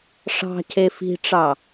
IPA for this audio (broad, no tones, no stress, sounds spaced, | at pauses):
ʂ ɑ̤ cʰ e f i̤ ʈ͡ʂ ɑ